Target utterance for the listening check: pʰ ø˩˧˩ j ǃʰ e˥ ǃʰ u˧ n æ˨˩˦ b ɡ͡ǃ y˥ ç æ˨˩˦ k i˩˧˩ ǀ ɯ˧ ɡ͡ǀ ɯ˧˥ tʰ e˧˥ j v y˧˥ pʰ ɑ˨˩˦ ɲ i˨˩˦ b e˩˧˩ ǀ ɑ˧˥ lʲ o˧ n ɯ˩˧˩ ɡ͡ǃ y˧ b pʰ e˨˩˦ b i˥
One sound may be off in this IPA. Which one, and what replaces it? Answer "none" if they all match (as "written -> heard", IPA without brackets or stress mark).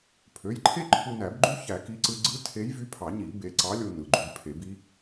none